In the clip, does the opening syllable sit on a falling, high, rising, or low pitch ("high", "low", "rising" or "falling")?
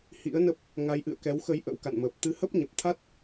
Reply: rising